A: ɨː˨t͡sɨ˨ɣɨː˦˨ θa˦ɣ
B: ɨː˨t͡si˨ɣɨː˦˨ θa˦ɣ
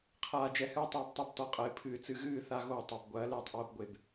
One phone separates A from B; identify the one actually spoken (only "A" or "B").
A